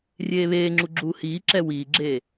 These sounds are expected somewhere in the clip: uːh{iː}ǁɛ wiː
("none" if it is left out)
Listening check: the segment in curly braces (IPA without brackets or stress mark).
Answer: iː